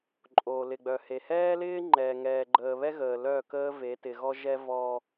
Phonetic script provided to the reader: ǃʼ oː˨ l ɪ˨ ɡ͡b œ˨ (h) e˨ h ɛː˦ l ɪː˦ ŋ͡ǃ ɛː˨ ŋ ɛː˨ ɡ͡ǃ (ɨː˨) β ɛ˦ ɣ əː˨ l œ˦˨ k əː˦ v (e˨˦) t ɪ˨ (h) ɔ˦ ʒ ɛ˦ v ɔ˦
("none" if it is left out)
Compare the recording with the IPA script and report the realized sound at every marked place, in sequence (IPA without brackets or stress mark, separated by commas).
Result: h, əː˨, e˨˦, ɣ